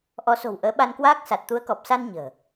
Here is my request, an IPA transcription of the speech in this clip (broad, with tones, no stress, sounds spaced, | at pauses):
ʔ ɔ˨˦ s o̤˨˩ w ʔ əː˨˦ ɓ a˧ n k w aː˦˥ k̚ s a˨˩ t̚ t̪ u˨˦ ə̯ k ɔ˨˩ p̚ s a˧ n ɲ ə̤ː˨˩